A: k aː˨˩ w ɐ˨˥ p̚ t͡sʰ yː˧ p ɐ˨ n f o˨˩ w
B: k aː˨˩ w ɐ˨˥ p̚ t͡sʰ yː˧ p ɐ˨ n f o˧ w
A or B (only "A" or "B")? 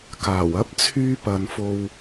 B